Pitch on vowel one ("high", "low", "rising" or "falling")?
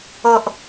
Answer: low